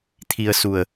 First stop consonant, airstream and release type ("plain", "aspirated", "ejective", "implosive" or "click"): aspirated